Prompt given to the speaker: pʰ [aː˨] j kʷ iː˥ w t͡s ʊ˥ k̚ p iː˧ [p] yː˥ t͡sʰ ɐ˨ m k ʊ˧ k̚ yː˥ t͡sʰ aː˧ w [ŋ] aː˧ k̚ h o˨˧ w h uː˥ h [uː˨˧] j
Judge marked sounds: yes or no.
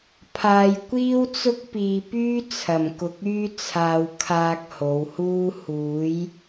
no, yes, no, yes

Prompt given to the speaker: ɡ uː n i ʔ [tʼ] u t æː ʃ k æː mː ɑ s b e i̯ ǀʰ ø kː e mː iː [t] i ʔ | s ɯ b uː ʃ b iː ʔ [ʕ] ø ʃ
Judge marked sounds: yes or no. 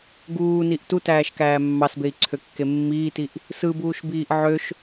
no, yes, yes

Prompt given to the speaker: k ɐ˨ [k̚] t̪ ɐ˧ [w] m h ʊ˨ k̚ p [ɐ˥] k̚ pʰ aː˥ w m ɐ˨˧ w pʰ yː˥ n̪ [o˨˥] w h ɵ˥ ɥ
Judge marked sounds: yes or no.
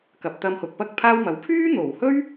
no, no, yes, no

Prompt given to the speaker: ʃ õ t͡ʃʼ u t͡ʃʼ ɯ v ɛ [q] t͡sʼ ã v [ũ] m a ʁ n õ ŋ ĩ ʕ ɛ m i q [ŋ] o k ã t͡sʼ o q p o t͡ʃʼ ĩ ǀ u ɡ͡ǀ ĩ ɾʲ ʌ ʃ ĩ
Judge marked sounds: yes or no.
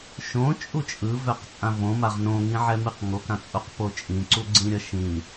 yes, no, yes

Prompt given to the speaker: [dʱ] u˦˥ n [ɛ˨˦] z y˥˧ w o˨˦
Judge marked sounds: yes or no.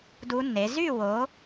no, no

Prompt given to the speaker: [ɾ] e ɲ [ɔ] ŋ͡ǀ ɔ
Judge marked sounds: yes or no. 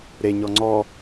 yes, yes

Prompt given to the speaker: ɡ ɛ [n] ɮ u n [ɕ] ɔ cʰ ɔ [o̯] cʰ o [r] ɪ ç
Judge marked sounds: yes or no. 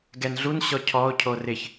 yes, yes, yes, yes

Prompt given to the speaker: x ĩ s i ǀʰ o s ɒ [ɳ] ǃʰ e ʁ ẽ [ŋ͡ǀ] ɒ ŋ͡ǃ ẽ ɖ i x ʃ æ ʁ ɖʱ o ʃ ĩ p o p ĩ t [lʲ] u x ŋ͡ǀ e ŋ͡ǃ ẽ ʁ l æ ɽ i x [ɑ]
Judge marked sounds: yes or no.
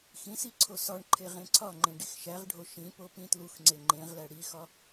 yes, no, no, no

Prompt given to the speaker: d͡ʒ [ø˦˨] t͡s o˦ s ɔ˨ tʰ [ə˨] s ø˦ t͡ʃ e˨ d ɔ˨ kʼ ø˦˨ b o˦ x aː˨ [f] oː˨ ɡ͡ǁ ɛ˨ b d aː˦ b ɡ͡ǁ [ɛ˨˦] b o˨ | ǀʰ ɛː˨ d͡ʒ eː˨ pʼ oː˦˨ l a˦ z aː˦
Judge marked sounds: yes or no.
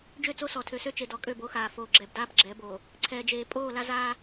yes, no, yes, yes

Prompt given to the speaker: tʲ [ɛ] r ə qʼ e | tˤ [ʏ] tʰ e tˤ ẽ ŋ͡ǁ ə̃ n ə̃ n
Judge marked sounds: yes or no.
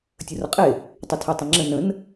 no, yes

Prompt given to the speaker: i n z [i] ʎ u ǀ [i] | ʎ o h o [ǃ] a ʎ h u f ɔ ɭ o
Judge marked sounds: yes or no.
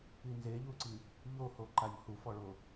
no, yes, yes

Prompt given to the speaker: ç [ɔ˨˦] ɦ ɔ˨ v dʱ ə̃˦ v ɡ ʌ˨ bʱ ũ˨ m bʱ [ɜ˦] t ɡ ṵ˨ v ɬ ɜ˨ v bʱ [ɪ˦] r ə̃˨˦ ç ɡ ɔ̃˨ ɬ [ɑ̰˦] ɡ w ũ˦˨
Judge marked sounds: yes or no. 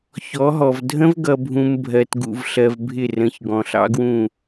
yes, no, no, yes

